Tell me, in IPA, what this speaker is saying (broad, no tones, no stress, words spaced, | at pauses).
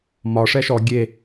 mɒ ʂɛʃɔ ɡʲe